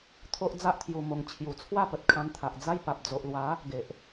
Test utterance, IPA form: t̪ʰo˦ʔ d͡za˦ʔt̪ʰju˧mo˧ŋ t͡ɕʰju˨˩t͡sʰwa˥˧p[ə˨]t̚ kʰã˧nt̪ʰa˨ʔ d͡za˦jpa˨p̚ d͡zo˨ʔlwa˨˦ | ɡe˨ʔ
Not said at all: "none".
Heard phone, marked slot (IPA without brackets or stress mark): ə˨